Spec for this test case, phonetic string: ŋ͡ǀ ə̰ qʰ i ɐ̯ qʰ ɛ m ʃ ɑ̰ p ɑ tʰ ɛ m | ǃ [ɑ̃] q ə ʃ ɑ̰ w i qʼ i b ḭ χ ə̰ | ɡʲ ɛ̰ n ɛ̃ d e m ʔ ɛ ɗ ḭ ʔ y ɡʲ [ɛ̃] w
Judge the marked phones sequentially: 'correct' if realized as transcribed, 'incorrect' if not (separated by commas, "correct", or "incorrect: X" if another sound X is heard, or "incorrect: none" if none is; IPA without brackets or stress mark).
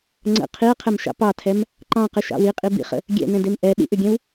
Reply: correct, correct